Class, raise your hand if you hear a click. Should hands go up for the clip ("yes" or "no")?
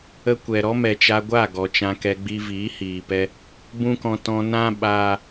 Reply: no